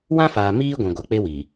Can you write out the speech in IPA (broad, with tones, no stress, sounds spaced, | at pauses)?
w ã˦ f aː˨ m iː˦ ɡʷ ĩ˨ ɡʷ a˨ k͡p e˦ w i˨